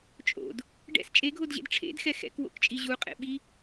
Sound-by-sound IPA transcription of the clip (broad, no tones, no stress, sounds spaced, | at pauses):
t͡ʃʼ o̰ d | ɖ ɛ̰ s t͡ʃʼ e ɡʱ o d ʑ ḛ d ʈ͡ʂʰ ḛ d x ɛ x ɛ̰ k w o̰ k t͡ʃʼ i ʑ u qʼ ḛ ɓ i